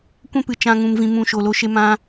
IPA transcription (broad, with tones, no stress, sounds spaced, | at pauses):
kʷ ɛ̃˦ p ɨ˨ t͡ʃ ã˧ ŋ ũ˧ m v ĩ˧ m ũ˧ ʃ o˨ l o˧ ʃ e˧ m ã˧